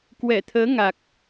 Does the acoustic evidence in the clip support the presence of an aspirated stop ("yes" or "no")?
yes